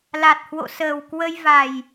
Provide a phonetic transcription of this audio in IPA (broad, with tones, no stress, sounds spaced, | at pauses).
l a˨˩ t̚ h w o̰˧˨ s əː˨˩ w k w ə˧ j v a˨˩ j